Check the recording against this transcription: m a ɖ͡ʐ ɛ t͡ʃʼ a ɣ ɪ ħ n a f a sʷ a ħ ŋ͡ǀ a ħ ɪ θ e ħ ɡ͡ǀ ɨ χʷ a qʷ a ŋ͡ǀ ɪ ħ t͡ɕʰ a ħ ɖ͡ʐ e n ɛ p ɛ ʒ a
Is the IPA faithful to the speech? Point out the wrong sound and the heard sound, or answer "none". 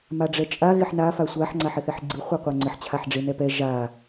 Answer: none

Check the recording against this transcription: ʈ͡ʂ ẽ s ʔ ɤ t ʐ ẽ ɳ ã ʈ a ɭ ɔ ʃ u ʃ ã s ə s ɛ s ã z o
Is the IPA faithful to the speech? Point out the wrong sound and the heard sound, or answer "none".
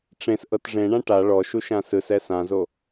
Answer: ə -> ɯ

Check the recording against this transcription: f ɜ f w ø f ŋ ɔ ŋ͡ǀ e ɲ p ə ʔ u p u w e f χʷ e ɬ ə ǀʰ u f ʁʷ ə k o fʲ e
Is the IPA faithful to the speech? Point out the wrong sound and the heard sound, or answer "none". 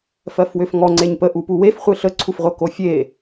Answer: none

